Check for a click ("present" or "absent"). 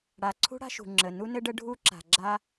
present